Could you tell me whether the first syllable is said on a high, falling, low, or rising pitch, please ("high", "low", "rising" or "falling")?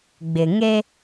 low